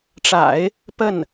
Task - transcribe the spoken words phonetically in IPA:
ʈ͡ʂ a̰˨˩˦ ɪ̯ | p ə˥˩ n

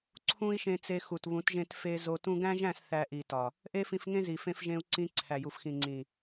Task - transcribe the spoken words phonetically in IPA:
ǀʰ ũ˦ i̯ ʃ ẽ˧ t͡s e˧ x u˨ t β ũ˨˦ t ʒ ẽ˧ t f e˧ z o˧ t ũ˧ ɡ æ̃˦ ʒ æ̃˦˨ s θ æ˧ ʔ i˨ t ɒ˨ | ʔ e˦ f ĩ˧ f ŋ ẽ˦ z i˨ f ẽ˧ f ʒ ẽ˧ u̯ ǀ ĩ˧ ǀʰ æ˨ j u˨ f x ĩ˨ ŋ͡ǀ ĩ˨

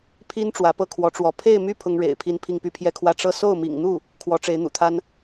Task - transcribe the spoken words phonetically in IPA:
pʰ i˥ n ʈ͡ʂ w ä˧˥ p ɤ˥ kʰ w ɔ˧˥ ʈ͡ʂ w ɔ˧˥ pʰ e˥˧ ɪ̯ m y˥˩ pʰ ʊ˥ ŋ ɻ ḛ˨˩ ɪ̯ pʰ i˥˧ n pʰ i˥˧ ŋ p y˥˧ pʰ j ɛ˥˧ kʰ w ä˥˧ ʈ͡ʂ ɤ˥˧ s o˥˩ ʊ̯ m ḭ˨˩ ŋ n̪ u˥˩ | kʰ w ɔ˧˥ ʈ͡ʂ e˧˥ ɪ̯ n̪ ṵ˨˩ t̪ʰ a˥ n

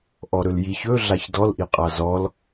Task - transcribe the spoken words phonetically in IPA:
ʔ ɔ ɾ ɵ l j i ç ɵ ɮ a ç d ɔ l ʔ i qʼ a z ɔ l

